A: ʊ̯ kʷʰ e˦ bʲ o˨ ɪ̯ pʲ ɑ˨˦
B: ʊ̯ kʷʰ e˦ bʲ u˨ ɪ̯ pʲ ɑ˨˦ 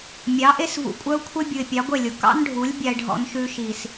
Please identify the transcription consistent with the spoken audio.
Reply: B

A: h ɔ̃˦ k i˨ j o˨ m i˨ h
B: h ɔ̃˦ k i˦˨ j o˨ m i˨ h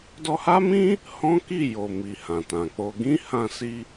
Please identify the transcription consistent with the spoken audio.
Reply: B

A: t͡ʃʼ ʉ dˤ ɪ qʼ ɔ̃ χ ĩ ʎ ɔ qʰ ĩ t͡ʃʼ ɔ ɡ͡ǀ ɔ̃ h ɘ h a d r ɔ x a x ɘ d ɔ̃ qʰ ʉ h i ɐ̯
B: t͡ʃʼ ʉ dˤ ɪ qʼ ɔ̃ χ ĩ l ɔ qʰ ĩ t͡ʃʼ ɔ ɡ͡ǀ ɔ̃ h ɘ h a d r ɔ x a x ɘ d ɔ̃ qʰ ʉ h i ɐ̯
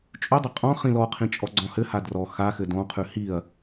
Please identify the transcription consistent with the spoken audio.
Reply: B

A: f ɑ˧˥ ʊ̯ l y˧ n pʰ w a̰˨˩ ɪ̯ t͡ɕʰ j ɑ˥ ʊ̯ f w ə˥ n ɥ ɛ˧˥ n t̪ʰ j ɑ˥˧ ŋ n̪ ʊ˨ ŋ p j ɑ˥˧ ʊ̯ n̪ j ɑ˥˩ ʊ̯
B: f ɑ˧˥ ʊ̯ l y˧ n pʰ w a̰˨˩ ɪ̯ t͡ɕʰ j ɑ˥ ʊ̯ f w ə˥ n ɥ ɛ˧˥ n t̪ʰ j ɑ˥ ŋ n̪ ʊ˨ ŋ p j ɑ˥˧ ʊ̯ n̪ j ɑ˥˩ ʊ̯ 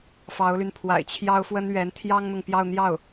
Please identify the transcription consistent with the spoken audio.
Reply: B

